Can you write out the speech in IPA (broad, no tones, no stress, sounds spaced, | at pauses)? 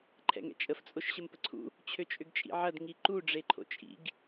ǃʰ ɛ̰ ŋ ɛ̰ t͡ʃʼ ə f t͡sʼ o ʃ ɕ ə m p ə ǀʰ ṵ | t͡ɕʰ ø t͡ʃʼ ʏ ɡ t͡ʃʼ ḭ ʕ ɐ d ŋ i ǃ u ɖ͡ʐ e ǃʰ o̰ t͡ʃʼ ḭ ɡ